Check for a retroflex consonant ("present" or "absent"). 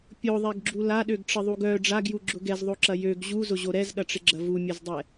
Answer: present